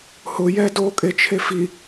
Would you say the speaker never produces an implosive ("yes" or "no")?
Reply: yes